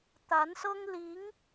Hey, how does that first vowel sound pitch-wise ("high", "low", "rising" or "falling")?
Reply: rising